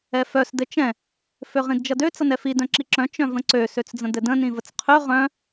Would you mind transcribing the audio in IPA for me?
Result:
ɛ f œ s d ɘ t͡ʃ ɛ̃ | f ø ʁ ĩ d d͡ʒ ʌ d ø t͡s ʌ n ɛ f i d œ̃ ǁ i ǁ œ̃ t͡ʃ œ̃ v ə̃ ǀ ø s ø t͡s d͡z ə̃ d ɘ d ə̃ n ĩ v ə t͡s qʰ ø ʁ œ̃

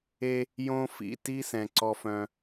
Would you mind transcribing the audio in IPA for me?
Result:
e˦ | j õ˦ f ḭ˨ t i˦ s ɛ̃˨ ǀ ɔ˦ f œ̃˦

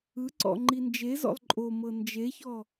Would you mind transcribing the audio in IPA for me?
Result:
ɯ ǀ ɔ̰ ŋ͡ǃ i n d͡ʒ e z ɔ̰ lˠ ǃʼ o m ɤ n d͡ʒ e ç ɔ

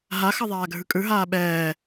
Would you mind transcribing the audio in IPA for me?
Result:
ɦ a x ʌ ðˤ aː ɡʱ ɯ kʼ ɯ ɦ aː ɓ ɛː

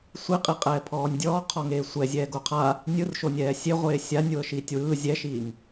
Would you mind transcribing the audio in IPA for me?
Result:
sʷ i qʼ i qʼ ɛː pʰ ɔː nʲ dʲ ɔː qʰ ɔ ŋ eː sʷ ɛ zʲ ɛː ɡ o qʰ a | nʲ ɯ r ʃ o nʲ ɛː sʲ e ʁʷ eː sʲ a nʲ w ɤ ʃ iː tʲ w ɯː zʲ ɛ ʃ iː ŋ

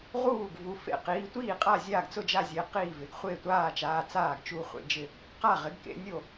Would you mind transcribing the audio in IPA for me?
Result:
ʁ uː˥˩ ɡ v u˨˦ f ḛ˥˩ q iː˨˦ tʷ iː˥˩ qʼ a˥˩ zʲ aː˥˩ ɡ t͡s ʊ˥˩ d͡ʒ a˥˩ zʲ e˨˦ q iː˥˩ v ɪ˨˦ ɡ χʷ ɪː˥˩ tʷ aː˥˩ t͡ʃ aː˨˦ t͡s aː˥˩ ɡ t͡ʃ u˥˩ χʷ ḛ˥˩ d͡ʒ ɪ˥˩ | q a˥˩ ʁ ɪ˨˦ ɡ k ḛ˨˦ nʲ o˥˩

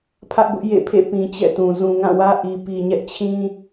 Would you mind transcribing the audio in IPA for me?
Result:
pʰ ä˦ ʔ b ʊ˦ ʔ j ḛ˦˨ pʰ ḛ˦˨ p ĩ˨ t͡ɕ ɛ̰˦˨ t ũ˨ z ũ˨ ŋ ã˦˨ w ä˦ ʔ i˨ p i˨ ɲ ɛ˦ ʔ t͡ɕʰ ĩ˦

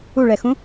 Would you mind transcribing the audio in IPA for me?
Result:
u ɭ ɛ x ũ

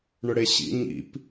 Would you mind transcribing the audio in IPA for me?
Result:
ɳ ʊ ɽ e ɕ ḭ ɲ ḭ p

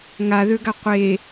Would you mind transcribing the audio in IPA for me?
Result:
ŋ a ð ø ɡ a qʷ e

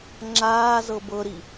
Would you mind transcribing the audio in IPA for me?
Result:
ŋ͡ǁ aː z ɤ b ɤ ɾ i

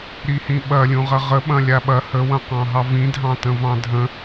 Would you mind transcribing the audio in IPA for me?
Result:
ɾ i h ĩ ɓ ɐ lʲ ũ ʁ ɐ ʁ ə ɓ ɐ̃ lʲ a ɓ ɐ h ə w ɐ̃ q ɑ̃ ɦ ɑ v ĩ dʱ ɑ̃ t ə̃ v ɑ̃ dʱ ə̃

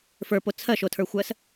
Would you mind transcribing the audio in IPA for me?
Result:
f ə˞ p o t͡sʰ ɜ ʃ o tʰ ə˞ xʷ ɜ s

